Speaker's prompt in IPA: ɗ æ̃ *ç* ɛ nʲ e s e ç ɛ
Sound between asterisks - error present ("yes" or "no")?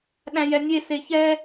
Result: yes